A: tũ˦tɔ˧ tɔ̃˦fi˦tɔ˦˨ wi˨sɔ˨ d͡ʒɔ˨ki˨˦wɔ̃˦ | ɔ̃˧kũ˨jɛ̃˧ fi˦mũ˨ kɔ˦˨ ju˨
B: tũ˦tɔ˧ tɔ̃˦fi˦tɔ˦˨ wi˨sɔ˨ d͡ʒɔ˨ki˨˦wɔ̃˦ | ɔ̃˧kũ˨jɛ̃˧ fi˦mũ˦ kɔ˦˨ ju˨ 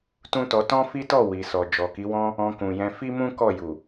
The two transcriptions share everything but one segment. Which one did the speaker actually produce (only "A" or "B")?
B